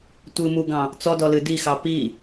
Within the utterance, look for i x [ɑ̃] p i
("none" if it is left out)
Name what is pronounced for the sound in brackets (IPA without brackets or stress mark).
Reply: ɑ